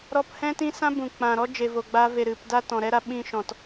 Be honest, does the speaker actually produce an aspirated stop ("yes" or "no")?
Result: no